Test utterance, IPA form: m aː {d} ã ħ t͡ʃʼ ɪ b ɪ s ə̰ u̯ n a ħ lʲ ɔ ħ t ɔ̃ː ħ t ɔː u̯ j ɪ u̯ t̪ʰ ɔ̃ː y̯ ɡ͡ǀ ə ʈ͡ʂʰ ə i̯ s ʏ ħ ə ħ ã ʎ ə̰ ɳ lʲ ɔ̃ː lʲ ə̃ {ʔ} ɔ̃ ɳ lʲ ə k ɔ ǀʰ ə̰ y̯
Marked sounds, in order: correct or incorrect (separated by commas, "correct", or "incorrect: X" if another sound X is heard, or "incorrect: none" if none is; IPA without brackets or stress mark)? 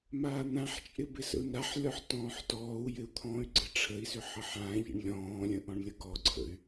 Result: incorrect: n̪, correct